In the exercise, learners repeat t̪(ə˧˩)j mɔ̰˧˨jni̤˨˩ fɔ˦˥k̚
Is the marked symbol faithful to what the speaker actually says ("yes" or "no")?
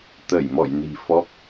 yes